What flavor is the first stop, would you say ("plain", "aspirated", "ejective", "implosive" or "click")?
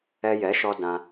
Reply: plain